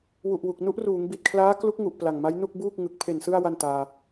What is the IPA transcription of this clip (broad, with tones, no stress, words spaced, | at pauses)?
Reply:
wu˨˩ʔwu˨˩k̚ nu˦˥ʔruː˩˦ŋ bi˨˩t̚kʰlaː˦˥klu˦˥k̚ŋu˨˩ʔ pla˨˩ŋma˦˥j nu˥˩k̚ buː˥˩k̚ŋɯ˨˩k̚ pʰe˨˩nsɯ˧a̯ wa˥˩ntaː˧